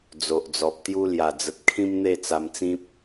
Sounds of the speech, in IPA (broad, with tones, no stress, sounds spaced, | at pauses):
d͡z o˨ ʔ d͡z ɔ˨ p̚ t̪ j u˦ l j a˨˩ d͡z ə˨ t̚ kʰ ĩ˦ m n̪ e˥˧ t͡s a˧ m t͡s ĩ˦ p̚